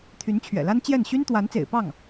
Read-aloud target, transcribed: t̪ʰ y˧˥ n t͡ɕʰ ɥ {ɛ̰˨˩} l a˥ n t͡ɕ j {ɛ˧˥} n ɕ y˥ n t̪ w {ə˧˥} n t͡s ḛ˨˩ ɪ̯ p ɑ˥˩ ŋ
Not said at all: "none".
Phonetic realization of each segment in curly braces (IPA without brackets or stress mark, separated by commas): ɛ̰˨˩, ɛ˥˩, a˧˥